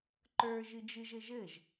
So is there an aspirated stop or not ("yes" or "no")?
no